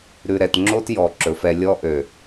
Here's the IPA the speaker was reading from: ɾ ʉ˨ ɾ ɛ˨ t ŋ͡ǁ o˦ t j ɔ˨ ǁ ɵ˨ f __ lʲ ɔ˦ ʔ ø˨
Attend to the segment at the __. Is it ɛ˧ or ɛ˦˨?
ɛ˧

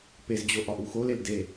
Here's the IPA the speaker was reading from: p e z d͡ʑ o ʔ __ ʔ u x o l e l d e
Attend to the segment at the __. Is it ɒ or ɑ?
ɒ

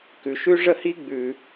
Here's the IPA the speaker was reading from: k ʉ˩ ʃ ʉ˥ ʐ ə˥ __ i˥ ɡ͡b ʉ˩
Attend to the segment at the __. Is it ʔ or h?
h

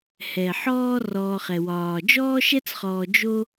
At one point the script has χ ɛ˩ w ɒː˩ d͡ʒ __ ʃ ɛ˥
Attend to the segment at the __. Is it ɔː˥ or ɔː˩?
ɔː˥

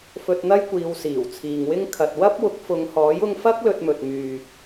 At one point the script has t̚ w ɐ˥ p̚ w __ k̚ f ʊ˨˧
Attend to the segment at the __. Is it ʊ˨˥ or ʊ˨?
ʊ˨˥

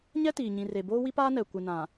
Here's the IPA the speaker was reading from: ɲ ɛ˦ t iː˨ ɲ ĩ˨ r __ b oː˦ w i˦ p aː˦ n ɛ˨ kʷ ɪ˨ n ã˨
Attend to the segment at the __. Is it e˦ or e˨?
e˨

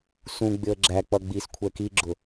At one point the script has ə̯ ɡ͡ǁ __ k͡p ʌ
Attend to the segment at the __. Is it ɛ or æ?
æ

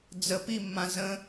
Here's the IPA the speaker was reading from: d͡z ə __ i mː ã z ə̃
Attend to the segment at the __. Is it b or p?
p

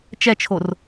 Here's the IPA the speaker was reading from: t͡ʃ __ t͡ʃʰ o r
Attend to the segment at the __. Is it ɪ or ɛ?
ɛ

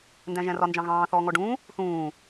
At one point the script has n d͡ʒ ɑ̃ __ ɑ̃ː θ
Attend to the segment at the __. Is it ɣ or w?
ɣ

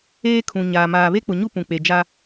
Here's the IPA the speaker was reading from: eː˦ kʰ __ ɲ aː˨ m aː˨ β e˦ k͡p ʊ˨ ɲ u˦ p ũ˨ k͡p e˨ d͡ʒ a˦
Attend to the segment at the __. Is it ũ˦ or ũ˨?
ũ˨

